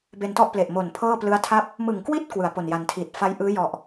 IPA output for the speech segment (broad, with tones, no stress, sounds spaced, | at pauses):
b e˧ n t ɔ˥˩ ʔ p l e˨˩ ʔ m o˨˩ n pʰ ɤː˥˩ p l ɯ˦˥ a̯ tʰ a˥˩ p̚ | m ɯ˨˩ ŋ k w i˥˩ t̚ k w ɯ˩˦ a̯ p o˨˩ n j a˨˩ n tʰ iː˨˩ t̚ f a˧ j ʔ ɯː˦˥ j ɔ˨˩ ʔ